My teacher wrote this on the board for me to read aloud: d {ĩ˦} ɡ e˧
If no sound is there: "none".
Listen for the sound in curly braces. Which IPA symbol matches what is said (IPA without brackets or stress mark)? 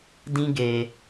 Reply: ĩ˦